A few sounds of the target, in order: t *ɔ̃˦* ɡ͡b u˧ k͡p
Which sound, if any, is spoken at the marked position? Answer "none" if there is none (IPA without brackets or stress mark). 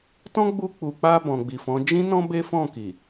ɔ̃˦